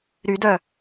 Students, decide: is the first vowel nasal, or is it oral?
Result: oral